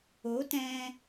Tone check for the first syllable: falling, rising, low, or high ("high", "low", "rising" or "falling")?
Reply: rising